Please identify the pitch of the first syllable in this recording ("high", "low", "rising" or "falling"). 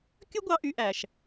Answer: high